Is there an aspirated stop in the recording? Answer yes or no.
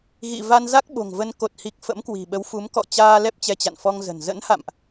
no